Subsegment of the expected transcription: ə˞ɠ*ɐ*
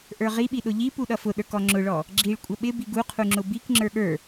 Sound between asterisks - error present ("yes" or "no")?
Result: yes